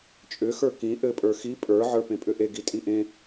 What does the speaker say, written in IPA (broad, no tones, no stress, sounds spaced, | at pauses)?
t͡ʃʼ ʏ x ə˞ k ĩ ʔ ɘ pʼ ə˞ x i pʼ ə˞ ʕ ə˞ p ẽ pʼ ʏ ʔ e ɡ i tʼ i ʔ ẽ